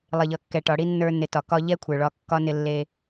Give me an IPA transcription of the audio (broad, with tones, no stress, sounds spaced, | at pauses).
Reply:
lˠ ɪ˨ ʎ ʌ˨ kː ɛ˨ ʈ ɒ˨ ɽ i˦ nː ə˞˧ n ɪ˨ t ɒ˨ k ɒ˧ ʎ ɛ˦ kʷʰ ə˞˨ ɭ ɒ˧ kː ɒ˦ n ɪ˧ lː e˧